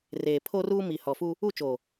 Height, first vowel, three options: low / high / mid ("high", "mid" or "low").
mid